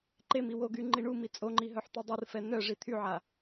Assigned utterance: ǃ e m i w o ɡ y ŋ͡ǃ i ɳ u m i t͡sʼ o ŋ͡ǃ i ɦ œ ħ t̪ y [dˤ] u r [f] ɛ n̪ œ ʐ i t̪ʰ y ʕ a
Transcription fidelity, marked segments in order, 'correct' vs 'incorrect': correct, correct

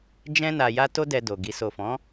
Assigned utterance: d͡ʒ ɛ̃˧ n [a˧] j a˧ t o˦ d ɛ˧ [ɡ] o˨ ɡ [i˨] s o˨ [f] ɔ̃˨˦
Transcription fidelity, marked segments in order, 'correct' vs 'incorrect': incorrect, incorrect, correct, correct

